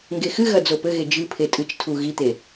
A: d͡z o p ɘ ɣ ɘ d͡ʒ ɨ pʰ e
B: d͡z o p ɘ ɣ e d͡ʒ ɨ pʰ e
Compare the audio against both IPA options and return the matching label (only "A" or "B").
B